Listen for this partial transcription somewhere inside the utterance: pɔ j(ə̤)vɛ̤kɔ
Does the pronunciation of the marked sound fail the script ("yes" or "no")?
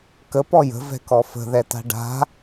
no